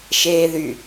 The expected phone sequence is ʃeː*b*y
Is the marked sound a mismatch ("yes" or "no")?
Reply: yes